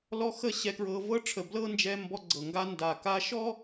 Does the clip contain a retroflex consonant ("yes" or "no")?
yes